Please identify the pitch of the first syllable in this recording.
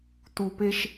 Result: low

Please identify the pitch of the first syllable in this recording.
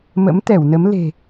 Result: rising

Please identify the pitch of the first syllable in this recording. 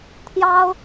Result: high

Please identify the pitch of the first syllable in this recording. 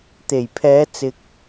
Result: low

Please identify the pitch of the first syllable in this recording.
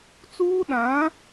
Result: high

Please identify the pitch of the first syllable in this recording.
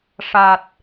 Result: low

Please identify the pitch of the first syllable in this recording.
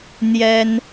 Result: high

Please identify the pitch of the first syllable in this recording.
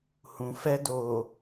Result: low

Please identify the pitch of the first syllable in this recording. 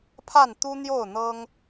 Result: falling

